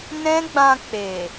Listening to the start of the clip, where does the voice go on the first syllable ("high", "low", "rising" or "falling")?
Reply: high